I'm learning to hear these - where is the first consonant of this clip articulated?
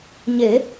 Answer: palate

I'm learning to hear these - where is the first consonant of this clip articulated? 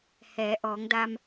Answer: throat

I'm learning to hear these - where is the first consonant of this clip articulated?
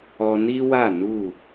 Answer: tongue tip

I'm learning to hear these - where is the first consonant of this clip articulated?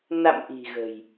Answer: tongue tip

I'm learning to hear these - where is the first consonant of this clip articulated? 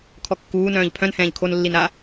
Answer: velum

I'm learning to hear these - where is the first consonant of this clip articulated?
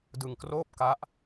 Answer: tongue tip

